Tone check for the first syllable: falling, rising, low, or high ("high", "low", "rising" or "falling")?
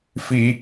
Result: high